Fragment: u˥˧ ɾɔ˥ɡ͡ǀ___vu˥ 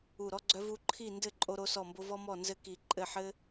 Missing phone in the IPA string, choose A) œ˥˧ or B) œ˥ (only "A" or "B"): B